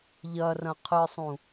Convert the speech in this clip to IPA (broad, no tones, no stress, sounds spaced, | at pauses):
ʎ ɐ r ɐ̃ qʰ ɨ sˤ ũ